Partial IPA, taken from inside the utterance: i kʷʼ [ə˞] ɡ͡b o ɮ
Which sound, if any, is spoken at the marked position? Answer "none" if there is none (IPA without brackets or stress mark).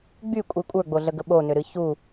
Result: ə˞